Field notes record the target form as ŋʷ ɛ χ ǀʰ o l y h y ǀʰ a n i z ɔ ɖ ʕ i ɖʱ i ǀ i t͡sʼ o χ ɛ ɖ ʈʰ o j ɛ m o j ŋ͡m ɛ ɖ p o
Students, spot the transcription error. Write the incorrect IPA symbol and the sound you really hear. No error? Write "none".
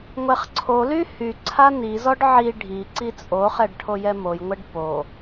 ŋ͡m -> ŋʷ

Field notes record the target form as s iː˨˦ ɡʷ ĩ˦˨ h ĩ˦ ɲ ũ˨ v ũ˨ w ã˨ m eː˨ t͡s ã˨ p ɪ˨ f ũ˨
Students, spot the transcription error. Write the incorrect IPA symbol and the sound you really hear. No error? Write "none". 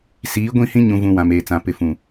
none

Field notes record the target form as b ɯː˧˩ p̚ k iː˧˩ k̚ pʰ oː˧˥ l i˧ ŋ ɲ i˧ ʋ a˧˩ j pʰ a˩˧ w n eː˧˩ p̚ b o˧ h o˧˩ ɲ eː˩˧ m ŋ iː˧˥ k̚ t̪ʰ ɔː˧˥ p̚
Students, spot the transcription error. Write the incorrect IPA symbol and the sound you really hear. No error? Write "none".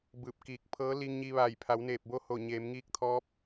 oː˧˥ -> ɤː˧˥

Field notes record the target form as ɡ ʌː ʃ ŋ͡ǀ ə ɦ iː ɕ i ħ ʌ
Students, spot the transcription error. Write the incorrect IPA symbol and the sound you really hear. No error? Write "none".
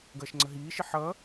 ɕ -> ʃ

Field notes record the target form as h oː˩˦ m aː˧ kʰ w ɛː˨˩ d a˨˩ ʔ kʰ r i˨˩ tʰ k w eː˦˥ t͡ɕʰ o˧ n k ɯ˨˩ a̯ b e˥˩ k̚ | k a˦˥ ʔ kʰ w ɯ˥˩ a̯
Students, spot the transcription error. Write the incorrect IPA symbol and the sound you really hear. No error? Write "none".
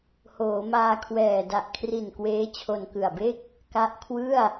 tʰ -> n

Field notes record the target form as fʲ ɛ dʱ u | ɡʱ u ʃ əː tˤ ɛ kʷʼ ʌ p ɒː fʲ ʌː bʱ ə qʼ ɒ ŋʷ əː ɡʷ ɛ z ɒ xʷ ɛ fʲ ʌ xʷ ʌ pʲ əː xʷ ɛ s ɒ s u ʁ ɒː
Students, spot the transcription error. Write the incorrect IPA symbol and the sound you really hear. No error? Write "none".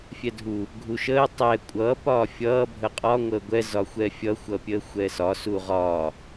none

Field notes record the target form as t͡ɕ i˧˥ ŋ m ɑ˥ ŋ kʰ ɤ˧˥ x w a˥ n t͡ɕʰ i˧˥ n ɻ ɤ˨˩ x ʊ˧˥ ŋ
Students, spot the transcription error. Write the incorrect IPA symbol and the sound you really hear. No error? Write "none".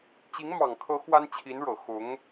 ɑ˥ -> ɑ˨˩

